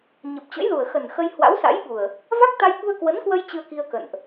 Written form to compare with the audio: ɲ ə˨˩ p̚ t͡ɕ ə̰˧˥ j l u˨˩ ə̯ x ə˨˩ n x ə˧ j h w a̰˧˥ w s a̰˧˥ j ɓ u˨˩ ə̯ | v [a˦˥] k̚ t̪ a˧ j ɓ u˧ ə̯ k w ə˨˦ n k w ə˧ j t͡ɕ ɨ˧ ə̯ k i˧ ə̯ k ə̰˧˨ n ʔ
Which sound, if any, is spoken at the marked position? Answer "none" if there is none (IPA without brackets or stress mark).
a˦˥